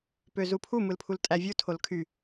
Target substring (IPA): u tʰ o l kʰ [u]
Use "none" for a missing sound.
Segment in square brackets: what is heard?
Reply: y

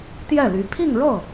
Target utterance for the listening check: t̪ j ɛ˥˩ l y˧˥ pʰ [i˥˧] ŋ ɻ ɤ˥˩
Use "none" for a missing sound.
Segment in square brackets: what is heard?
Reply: i˥˧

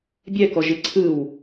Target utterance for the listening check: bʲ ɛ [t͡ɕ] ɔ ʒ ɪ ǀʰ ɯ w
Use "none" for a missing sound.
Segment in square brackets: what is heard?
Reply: k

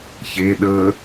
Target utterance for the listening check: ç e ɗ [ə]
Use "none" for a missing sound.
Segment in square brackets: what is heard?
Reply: ə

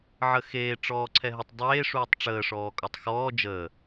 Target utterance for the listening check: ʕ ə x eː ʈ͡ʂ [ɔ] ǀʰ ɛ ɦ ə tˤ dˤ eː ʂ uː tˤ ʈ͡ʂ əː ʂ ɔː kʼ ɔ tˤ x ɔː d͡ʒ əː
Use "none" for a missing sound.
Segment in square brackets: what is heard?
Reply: ɔː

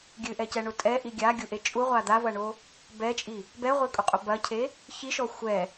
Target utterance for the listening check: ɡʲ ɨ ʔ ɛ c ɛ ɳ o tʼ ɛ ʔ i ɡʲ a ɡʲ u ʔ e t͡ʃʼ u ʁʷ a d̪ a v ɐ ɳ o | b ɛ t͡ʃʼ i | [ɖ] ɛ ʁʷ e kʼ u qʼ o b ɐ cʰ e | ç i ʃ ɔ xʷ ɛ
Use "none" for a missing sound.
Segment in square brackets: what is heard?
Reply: b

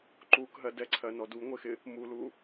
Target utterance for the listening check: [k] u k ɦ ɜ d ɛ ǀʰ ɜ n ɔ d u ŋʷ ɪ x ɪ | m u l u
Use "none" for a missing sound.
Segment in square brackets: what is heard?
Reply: ǃ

